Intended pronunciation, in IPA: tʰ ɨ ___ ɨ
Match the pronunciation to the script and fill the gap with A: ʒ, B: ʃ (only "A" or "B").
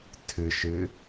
B